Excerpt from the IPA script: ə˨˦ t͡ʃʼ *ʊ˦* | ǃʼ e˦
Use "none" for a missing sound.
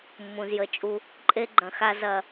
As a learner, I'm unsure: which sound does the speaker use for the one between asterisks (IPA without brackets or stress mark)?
u˦